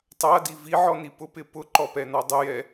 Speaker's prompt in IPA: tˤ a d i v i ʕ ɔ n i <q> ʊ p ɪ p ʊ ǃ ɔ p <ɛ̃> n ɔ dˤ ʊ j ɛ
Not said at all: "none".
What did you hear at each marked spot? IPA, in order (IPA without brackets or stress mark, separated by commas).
p, ɛ